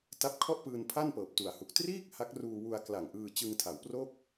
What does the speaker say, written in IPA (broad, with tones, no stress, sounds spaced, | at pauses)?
t a˦˥ p̚ kʰ ɔ˥˩ ʔ p ɯː˧ n pʰ a˥˩ n p ɤː˨˩ p̚ t u˨˩ a̯ h u˨˩ k̚ t r iː˥˩ k̚ h a˦˥ k̚ r uː˧ w u˧ a̯ k l a˨˩ ŋ ʔ ɯː˧ t͡ɕ ɯ˧ ŋ tʰ a˩˦ w p r o˥˩ k̚